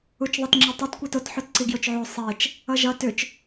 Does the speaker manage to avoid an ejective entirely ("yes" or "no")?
yes